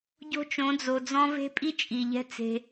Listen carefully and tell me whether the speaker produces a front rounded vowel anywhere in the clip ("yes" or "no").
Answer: no